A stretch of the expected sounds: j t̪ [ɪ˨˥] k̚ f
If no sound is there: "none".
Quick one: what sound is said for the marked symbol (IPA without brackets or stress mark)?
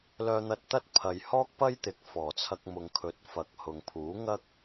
ɪ˨˥